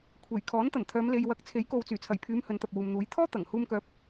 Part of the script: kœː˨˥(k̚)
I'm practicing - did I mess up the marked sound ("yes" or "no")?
yes